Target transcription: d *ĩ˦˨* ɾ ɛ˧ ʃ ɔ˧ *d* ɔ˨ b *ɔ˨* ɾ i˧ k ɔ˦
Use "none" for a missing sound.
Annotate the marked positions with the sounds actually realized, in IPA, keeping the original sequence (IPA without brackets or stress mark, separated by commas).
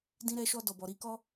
ĩ˦, d, ɔ˨